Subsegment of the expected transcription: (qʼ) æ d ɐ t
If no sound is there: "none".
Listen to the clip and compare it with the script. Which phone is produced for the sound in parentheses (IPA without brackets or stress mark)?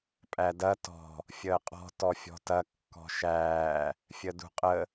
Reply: pʼ